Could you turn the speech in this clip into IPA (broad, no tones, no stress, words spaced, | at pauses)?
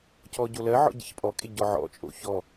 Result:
cɔɟolɜʕɔ̰ ɟḛçpʼɔkʼe ɟɔʕɔ̰t͡ʃʼo̰ çɔ